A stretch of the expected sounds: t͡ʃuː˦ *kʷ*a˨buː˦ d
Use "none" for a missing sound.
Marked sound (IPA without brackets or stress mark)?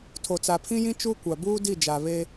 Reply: kʷ